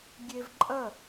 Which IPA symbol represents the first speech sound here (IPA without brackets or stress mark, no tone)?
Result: ɡʲ